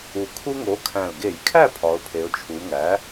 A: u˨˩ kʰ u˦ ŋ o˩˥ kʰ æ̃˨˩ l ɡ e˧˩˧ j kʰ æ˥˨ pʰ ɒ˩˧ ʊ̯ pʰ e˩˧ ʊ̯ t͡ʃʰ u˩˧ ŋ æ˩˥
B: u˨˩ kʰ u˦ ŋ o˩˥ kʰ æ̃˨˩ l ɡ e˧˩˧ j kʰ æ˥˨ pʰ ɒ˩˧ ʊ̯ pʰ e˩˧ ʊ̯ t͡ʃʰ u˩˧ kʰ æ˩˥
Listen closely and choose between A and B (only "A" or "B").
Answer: A